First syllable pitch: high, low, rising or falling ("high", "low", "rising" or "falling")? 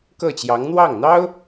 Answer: falling